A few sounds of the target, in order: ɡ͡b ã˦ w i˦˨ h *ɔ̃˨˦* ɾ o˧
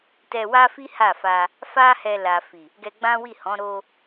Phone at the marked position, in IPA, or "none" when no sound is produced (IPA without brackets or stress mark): ɔ̃˨˦